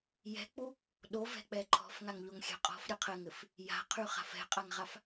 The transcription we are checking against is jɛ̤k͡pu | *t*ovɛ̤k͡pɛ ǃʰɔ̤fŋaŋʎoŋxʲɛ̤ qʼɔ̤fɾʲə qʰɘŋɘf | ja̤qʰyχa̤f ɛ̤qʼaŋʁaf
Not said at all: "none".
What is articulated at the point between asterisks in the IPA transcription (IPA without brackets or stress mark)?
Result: ɗ